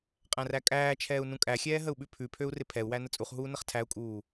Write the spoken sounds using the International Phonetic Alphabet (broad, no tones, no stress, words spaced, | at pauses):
qʼæ̃rækʼæːt͡ʃʰɛːu̯ nũkʼæxʲɛː ɦəu̯ɓʉpʰʉpʰøu̯ rɪpʰɛu̯wæ nət͡sʼuχɦuː nəχtʰæu̯kʼuː